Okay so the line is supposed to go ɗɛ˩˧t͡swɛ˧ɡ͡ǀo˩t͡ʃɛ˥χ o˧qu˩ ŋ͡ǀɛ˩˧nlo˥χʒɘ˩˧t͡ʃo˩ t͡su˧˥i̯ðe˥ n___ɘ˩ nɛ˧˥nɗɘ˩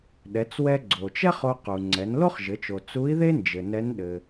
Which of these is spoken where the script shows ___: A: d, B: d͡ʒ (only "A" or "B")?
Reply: B